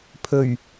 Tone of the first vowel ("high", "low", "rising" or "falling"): low